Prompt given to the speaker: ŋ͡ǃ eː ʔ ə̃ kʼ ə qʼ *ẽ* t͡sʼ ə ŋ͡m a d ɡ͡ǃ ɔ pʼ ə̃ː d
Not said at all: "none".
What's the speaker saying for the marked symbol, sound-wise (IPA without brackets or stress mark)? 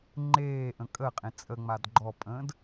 ẽ